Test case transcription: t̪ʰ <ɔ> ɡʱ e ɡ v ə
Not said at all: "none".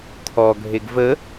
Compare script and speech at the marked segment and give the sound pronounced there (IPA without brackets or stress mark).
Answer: ɔ